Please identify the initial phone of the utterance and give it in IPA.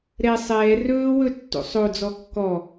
ɾ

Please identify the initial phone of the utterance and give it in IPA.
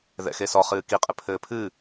ð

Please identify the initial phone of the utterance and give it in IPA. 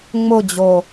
ŋ͡m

